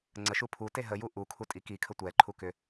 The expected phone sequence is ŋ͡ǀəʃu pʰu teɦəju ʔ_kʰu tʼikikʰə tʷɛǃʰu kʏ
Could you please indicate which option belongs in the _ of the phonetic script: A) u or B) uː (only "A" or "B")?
A